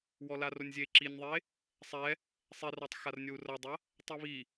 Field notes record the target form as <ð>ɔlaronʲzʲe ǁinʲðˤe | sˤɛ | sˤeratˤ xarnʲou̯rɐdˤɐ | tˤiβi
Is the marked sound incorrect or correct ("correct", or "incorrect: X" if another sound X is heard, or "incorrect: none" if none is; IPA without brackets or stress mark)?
incorrect: w